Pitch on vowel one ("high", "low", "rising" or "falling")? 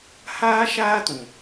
high